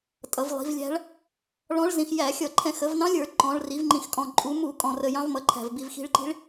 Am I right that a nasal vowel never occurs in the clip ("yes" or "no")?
no